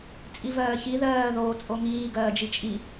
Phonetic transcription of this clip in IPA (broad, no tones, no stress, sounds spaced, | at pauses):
t͡sʼ i v ɜː ç i ð ɜː ð oː t͡sʼ o ŋ iː ɡ ɜː d͡ʒ i t͡ʃʼ i